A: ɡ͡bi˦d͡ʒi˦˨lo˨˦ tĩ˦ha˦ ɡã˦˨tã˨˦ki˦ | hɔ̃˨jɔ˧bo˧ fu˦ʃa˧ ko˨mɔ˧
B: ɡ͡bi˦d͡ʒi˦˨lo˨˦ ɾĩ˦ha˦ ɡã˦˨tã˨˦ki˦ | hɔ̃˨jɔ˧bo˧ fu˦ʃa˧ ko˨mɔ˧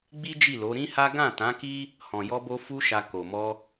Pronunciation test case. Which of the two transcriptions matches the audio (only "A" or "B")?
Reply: B